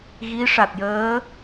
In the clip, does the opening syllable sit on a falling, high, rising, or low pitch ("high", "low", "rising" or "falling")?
rising